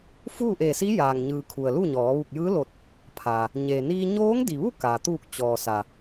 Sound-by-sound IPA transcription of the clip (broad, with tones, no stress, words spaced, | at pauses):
fuː˥˨ ʔe˧˩si˧˥ jaː˩ŋɲɯː˩ kʰu˩ə̯luː˥˨ɲɔː˩˧ ʋu˧˩k̚jɯː˧˥lo˧˩t̚ | pʰaː˩ | ɲe˩niː˧ ɲoː˧˥ŋdi˩ʋu˥˨ ka˩ t̪uː˧˩k̚ t͡ɕɔː˩sa˩